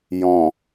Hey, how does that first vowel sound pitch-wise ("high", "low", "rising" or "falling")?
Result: low